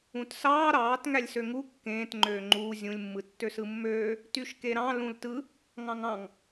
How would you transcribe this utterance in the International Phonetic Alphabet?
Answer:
ũ t s ɑː ɾ ɑː t ŋ æ lʲ s ø ŋ u kː ẽː t ŋ͡ǃ øː ŋ͡ǃ uː zʲ ũ lʲ mː ɯ tː ø s ɯ mː øː | t y ʃ k e ɾ ɑ̃ l ũ l t ɯ | ŋ ɑ̃ ŋ ɑ̃ ŋ

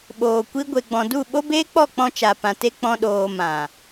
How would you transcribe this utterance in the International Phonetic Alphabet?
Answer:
ɓ oː˨ kʷ i˧ ɡʷ e˨ ɡ͡b ɔ̃˨ d u˦˨ ɓ o˦ b eː˦ k͡p ɔ˦˨ k͡p ɔ̃˧ t͡ʃ a˨ p ã˨ t e˧ k͡p ɔ̃˦ ɗ oː˧ m ã˨

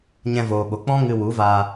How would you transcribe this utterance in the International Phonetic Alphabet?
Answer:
ɲ ɛ̃˧ v oː˨ ɓ o˨ k͡p ɔ̃˦ ŋ ɨ˧ w u˨˦ v aː˧

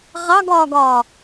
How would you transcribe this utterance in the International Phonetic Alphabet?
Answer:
ʁ ɑ ɡ ɒː ɡ ɒː

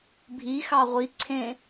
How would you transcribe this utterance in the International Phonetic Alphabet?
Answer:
bʱ i x ɑ ʁʷ i ǀʰ ẽ

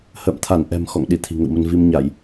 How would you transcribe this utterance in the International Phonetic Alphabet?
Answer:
h ə̰ː˧˨ m t̪ʰ a˧˩ n ʔ ɛ̤˨˩ m x ɔ̰˧˨ ŋ ɗ i˧˩ t̪ʰ i̤˨˩ ŋ ə̰˧˨ w m ə˧ n v i˧ m ɲ a˧˩˨ j

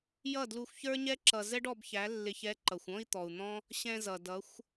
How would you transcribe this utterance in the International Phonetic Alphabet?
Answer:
j ʌ˦˨ d l u˧ xʷ ç ə˞˦ ɲ ɛ˦ ǁ ʌ˧ z ɛ˦ ɖ ɔ˧ b ç æ˨˦ lː ɪ˧ ç ɛ˨˦ ǃ ʌ˨ xʷ ɔ̃˦ i̯ t̪ ɔ˨ u̯ n̪ ɔ̃˦ | ɕ ɛ̃˧ z ʌ˨ d ʌ˨˦ xʷ

